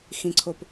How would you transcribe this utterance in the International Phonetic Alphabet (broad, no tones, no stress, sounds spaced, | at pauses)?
x ĩ ǀʰ o p